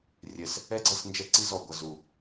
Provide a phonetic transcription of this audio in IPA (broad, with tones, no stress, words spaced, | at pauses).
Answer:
rʲɛ˨s | ɛ˦ɡ͡ǀʌ˦˨s nd͡ʒɛ˦ǀi˦zɔ˨ ɡʷʌ˨zu˨